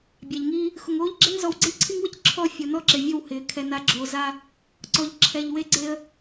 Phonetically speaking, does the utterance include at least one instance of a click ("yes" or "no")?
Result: yes